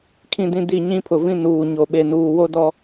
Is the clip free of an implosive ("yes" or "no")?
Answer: no